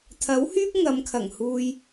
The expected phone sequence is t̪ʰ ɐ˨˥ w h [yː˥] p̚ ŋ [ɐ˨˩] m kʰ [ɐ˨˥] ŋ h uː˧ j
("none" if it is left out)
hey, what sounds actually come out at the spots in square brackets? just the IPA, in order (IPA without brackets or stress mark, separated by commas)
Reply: yː˥, ɐ˨˧, ɐ˨˩